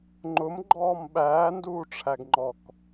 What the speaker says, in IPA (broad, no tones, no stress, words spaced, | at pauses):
ŋ͡ǃʊmɡ͡ǃɔːm ɓæːnduːʈ͡ʂʰæɡŋ͡ǃɔk